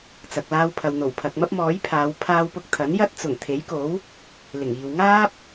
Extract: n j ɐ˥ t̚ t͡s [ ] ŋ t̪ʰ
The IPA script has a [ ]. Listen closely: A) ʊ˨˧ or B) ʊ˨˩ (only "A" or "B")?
B